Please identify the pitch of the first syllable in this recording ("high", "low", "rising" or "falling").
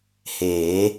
rising